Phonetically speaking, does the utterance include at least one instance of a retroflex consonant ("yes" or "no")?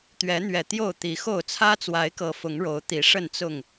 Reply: yes